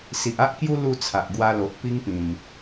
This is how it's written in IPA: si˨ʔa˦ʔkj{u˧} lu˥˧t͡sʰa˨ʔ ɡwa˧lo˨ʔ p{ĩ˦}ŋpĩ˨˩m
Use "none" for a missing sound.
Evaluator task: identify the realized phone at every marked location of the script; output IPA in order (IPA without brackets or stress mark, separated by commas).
u˦, i˦